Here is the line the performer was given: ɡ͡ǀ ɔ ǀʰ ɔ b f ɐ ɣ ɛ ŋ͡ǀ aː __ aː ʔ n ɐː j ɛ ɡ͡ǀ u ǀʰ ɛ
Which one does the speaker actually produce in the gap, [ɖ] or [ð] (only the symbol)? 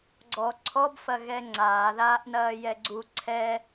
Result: ð